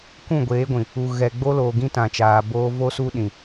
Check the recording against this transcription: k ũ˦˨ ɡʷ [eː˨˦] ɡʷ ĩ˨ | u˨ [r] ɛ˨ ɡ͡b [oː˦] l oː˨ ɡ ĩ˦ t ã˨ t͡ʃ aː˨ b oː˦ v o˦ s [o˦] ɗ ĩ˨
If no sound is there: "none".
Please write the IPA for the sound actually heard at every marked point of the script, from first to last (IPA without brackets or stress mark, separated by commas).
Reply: eː˨˦, ɣ, o˦, u˦